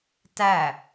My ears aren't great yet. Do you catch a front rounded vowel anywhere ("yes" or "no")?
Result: no